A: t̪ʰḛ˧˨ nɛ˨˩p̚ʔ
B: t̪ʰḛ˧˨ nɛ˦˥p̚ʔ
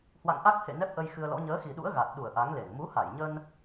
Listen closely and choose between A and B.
B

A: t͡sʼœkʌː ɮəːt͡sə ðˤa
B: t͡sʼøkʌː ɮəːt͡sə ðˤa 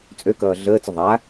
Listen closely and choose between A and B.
B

